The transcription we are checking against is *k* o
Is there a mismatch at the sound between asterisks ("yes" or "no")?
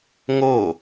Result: yes